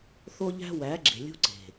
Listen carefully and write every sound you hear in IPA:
θ o˦ ʎ æ̤˦ w æ˨˦ ɡ͡ǁ e̤˨ lʲ ṳ˦ ǀ e̤˨

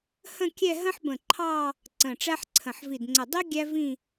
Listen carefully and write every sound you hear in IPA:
h ə̃˥˧ kʲ ɛ˥˧ ɦ ə̃˥ ħ b ə̃˧˩ ǃʰ ɑ˥˧ | ǀ ə̃˧˩ ʈ͡ʂ æ˥ ħ ǀʰ ə̃˧˩ ħ v i˧˩ d ŋ͡ǀ ə˧˩ dˤ i˥ ɡʲ æ˥ v ĩ˥˧

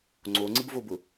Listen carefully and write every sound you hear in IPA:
ŋ͡ǀ o ŋ͡ǀ ɪ b v o b ʊ

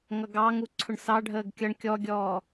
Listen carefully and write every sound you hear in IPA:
ŋ ʌ ɡ ɑ ŋ u ǀʰ ʊ ɳ s ɑ ɖʱ əː ɡ kʲ ʌ ɳ kʲ ɔ ɡʲ ɔː

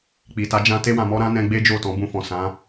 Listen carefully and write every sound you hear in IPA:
k͡p i˨ t a˨˦ d͡ʒ ã˧ t e˧ w ã˨ m ɔ˧ ɾ ã˦ n ɛ̃˧ ɡ͡b e˦ d͡ʒ o˦˨ t ɔ̃˨˦ b ũ˧ f ɔ̃˨ s ã˨˦

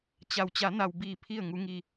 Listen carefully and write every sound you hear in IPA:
t͡ɕ a˩ w t͡ɕ a˩˧ n a˩ w b iː˧˩ pʰ i˧˩ ə̯ ŋ u˩˧ ŋ i˩

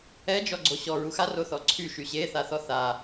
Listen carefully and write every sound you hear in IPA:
ɛ d͡ʒ ɔ ɡ͡ǀ o ɕ ɔ ɹ u x a r o θ ɔ ǀʰ y ʃ y ɕ e θ a θ ɔ θ a

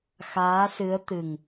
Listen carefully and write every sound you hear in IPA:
x aː˧˥ s ɨ˧˥ ə̯ t̪ ɨ˨˩ ŋ

